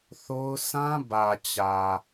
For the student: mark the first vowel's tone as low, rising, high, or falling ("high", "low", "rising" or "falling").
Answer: high